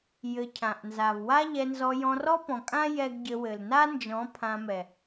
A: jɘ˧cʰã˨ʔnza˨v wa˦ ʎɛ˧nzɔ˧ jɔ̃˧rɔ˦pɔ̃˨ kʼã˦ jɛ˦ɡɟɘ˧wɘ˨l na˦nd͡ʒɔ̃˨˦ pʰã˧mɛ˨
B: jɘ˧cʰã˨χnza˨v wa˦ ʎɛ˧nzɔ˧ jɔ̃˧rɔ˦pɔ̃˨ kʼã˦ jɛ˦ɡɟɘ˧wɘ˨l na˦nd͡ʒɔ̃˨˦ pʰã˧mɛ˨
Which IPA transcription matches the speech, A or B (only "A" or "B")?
A